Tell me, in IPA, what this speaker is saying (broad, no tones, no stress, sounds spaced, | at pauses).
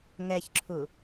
ŋ ɛ ç ǁʰ u